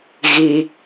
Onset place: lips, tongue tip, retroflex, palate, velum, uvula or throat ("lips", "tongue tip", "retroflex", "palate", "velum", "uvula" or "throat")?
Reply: velum